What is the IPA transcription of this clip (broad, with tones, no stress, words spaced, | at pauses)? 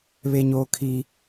βe˦ɲoː˦ kʰi˦